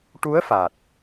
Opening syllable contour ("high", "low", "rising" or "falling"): rising